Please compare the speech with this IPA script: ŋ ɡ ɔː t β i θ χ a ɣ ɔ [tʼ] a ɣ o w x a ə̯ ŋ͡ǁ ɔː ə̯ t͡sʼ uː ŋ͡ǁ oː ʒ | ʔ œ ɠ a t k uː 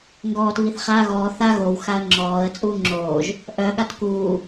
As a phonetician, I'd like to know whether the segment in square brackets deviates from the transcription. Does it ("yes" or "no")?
yes